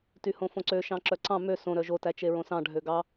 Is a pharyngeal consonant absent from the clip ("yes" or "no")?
yes